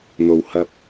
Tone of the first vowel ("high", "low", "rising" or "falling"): low